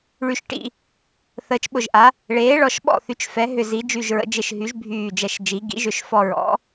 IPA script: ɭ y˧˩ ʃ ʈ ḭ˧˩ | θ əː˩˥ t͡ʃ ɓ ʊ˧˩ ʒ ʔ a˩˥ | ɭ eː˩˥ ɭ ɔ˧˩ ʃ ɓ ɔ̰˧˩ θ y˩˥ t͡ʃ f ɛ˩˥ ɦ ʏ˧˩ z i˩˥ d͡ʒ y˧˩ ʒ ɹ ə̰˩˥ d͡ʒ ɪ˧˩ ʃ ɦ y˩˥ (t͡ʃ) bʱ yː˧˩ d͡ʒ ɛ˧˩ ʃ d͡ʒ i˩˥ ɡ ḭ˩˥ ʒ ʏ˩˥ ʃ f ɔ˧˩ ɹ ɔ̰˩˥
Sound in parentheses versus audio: incorrect: ʒ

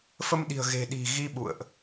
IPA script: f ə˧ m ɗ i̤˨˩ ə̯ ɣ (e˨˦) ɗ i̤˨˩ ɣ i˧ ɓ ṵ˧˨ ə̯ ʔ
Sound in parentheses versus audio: incorrect: e̤˨˩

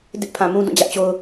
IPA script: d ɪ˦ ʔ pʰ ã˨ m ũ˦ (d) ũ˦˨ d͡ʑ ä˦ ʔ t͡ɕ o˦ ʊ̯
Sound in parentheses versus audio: correct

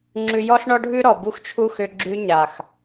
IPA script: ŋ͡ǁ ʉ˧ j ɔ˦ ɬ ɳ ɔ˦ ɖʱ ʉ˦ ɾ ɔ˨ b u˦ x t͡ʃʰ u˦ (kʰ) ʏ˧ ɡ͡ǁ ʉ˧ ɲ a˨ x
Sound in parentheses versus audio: incorrect: x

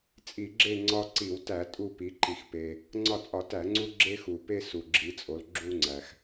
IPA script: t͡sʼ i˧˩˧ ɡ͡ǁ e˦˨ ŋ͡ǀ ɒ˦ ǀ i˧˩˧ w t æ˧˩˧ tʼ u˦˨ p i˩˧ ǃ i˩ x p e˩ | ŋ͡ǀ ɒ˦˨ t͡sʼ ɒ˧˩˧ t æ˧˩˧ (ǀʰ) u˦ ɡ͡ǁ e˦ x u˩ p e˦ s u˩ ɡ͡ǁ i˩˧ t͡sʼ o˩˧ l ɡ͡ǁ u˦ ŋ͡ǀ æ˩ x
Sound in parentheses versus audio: incorrect: ŋ͡ǀ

